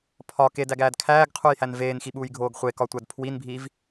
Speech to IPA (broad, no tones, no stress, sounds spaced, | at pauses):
pʰ ɒ k e d æ ɡ æː d kʰ æː ɡ qʰ u j h æ n v eː n x i ɓ uː j ɡʱ oː ɡ χʷ e k ɒ tʷ æ d pʰ w i n bʱ iː v